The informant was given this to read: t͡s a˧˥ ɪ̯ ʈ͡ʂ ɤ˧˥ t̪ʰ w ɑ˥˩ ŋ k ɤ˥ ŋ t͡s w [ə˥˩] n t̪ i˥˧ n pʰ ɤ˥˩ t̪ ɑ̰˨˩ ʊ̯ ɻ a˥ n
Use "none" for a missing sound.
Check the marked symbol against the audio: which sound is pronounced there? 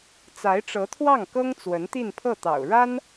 ə˧˥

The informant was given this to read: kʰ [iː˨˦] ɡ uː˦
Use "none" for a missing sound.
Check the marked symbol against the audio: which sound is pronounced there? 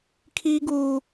iː˦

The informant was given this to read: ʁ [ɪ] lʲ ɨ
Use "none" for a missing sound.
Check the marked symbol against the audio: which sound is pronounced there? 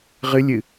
ɨ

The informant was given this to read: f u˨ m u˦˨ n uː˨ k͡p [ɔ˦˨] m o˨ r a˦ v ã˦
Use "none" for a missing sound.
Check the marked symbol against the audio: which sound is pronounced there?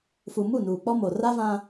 ɔ˦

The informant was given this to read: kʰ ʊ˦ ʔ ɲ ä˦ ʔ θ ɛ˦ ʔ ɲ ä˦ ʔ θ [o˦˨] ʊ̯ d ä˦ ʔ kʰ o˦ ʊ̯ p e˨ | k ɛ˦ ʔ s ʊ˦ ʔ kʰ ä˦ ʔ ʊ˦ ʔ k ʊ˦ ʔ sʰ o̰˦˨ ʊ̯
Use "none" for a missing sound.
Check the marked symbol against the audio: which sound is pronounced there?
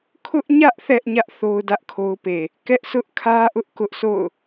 o˦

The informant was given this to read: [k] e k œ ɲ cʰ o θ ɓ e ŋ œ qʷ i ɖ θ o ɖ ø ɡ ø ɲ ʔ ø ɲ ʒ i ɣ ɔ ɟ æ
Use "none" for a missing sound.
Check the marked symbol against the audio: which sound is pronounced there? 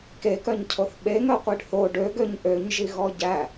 k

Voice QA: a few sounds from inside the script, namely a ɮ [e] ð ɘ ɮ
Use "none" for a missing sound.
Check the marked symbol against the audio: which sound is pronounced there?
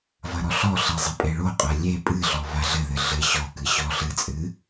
ɘ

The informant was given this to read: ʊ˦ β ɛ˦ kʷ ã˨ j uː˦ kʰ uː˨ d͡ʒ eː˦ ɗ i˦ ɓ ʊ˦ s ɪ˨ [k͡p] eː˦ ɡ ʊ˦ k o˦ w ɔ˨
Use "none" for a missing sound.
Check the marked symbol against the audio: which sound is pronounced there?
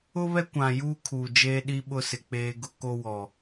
k͡p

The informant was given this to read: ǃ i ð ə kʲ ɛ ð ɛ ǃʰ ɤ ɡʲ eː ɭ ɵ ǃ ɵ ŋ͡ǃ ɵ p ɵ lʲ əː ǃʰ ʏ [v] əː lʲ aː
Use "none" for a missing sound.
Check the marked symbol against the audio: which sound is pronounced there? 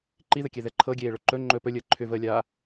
v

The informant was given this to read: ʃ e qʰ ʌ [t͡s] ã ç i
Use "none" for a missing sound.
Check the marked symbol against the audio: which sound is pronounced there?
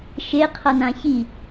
n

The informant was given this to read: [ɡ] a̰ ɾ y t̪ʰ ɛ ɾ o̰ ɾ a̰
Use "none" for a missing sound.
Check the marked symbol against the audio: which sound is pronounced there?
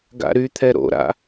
ɡ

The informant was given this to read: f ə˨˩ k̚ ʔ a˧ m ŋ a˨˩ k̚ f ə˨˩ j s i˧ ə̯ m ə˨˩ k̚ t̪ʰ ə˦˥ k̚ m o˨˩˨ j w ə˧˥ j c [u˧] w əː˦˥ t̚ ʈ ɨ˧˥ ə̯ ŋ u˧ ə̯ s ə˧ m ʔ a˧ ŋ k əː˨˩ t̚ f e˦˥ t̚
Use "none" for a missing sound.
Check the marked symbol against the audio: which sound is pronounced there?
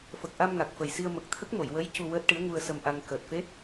u˧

